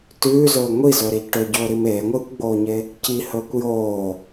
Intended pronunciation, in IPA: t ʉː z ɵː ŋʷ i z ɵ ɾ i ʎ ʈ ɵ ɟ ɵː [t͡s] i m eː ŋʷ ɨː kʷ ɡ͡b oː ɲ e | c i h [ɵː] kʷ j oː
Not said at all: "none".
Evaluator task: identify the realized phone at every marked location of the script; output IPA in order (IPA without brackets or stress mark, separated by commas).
ɾ, ɵː